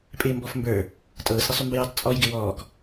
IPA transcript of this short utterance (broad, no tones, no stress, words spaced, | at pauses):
pʼɪːmbɔfmbə˞ | tʼɤːsɾɪsˤymbəj ə˞tˤt͡sʼɔj ɡɪwɔːk